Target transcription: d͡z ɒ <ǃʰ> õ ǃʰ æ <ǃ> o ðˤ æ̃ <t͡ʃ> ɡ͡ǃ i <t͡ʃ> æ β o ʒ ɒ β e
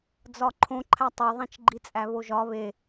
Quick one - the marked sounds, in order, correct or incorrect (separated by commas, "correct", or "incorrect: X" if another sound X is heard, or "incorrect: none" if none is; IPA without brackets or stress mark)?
correct, incorrect: tˤ, correct, incorrect: t͡sʼ